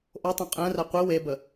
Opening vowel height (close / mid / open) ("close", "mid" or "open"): mid